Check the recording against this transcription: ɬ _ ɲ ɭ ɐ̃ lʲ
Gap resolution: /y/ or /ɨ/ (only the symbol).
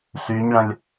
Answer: y